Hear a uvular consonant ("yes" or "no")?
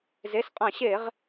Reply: yes